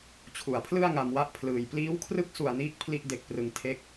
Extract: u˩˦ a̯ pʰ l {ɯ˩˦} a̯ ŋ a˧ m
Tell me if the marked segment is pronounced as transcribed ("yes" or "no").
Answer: no